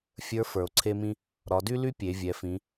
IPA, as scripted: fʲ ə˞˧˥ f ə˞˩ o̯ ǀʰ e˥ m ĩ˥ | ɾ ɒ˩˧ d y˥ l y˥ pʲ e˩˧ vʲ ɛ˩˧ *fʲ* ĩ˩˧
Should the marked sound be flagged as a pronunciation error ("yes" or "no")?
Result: yes